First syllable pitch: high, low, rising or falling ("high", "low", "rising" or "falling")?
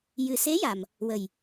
low